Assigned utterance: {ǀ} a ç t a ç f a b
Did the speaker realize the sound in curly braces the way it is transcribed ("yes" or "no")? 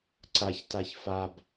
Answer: yes